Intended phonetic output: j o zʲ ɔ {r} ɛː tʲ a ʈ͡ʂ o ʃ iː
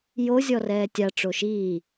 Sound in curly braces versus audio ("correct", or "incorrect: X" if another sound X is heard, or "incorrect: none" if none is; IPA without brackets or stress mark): correct